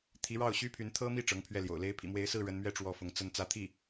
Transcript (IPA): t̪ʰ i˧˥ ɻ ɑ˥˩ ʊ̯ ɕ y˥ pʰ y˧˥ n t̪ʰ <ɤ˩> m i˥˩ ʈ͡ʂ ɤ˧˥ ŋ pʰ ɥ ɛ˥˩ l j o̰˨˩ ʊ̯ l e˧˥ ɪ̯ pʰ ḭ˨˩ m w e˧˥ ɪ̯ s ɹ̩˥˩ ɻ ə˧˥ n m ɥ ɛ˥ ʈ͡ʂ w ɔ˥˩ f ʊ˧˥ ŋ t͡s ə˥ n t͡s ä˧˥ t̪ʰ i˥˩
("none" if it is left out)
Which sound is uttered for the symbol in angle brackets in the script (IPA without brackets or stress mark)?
ɤ˥